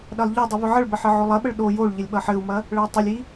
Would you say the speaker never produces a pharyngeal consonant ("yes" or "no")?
no